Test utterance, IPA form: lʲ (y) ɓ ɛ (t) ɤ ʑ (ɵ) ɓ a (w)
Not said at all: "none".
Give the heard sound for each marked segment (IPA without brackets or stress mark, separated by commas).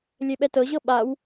e, t, ɤ, w